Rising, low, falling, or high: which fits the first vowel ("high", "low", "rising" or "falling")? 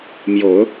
low